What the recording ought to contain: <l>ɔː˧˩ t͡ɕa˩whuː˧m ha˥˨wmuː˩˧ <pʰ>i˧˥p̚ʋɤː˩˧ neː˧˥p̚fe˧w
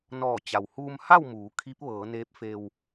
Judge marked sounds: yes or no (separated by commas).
no, no